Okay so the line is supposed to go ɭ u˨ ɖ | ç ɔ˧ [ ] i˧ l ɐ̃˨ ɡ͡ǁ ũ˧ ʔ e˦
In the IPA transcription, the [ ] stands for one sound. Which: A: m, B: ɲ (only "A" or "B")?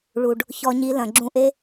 B